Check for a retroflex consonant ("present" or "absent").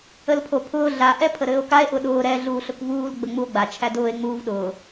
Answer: absent